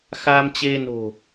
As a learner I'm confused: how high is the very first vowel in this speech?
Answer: low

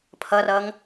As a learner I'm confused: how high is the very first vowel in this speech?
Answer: mid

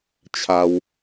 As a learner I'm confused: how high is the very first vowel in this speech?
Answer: low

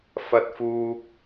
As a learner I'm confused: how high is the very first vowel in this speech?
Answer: low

